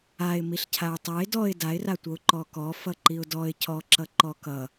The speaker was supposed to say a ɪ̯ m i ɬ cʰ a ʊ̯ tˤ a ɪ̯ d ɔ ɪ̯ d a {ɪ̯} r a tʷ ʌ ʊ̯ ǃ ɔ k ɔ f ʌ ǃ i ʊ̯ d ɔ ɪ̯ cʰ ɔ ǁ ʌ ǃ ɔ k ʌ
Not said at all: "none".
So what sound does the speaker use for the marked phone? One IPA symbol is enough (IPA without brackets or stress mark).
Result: ɪ̯